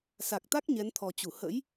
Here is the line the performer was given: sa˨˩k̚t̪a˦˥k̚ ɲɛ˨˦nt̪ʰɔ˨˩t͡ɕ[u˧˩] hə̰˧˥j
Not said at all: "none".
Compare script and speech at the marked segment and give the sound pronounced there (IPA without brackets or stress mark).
u˧˩